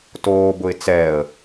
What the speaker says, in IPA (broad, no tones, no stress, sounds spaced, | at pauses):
t oː b ʊ ɪ̯ t͡s ɛː ə̯